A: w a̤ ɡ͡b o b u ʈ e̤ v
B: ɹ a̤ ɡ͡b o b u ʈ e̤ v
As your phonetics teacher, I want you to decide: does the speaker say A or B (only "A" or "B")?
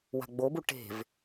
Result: A